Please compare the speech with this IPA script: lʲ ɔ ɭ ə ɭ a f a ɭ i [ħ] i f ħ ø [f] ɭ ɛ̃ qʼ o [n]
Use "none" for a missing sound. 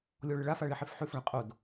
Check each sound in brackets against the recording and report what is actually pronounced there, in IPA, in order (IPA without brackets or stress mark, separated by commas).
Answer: ħ, f, d